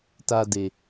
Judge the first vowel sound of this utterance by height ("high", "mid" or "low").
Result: low